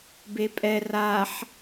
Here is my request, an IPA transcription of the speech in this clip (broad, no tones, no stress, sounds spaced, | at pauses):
b e pʼ ɛ r a ħ